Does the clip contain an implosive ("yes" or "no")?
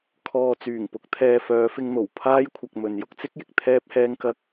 no